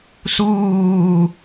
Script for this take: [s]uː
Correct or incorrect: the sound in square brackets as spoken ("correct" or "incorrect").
correct